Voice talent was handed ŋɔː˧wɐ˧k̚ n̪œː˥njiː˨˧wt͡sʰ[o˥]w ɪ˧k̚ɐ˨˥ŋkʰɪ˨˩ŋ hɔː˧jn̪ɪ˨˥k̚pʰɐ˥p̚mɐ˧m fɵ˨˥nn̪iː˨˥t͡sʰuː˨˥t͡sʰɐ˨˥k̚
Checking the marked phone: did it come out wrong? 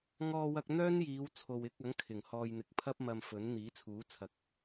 yes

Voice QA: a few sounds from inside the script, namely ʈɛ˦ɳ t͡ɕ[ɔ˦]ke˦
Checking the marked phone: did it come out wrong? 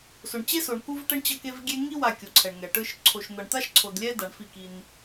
yes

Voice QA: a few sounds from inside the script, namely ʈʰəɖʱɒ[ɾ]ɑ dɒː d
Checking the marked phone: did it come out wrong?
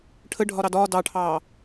no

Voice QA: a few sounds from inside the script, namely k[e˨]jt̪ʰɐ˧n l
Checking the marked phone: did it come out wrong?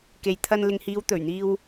no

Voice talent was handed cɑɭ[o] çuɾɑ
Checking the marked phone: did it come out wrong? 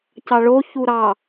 no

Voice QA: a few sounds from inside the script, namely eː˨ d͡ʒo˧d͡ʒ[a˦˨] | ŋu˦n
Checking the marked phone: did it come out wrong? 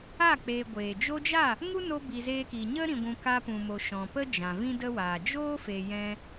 no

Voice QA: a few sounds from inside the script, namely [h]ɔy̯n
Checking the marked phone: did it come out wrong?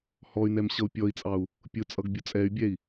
no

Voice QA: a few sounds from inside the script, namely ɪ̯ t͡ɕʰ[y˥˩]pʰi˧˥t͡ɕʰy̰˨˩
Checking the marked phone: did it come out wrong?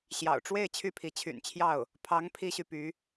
no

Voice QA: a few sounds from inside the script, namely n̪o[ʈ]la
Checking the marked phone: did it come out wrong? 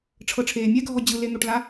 no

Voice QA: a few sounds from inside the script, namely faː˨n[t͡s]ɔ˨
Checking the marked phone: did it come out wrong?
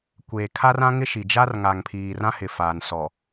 yes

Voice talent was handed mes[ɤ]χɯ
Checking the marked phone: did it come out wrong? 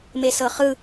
no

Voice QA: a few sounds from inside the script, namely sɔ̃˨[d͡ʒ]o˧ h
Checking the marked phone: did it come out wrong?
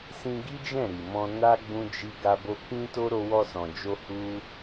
no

